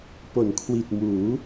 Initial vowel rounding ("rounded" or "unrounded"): rounded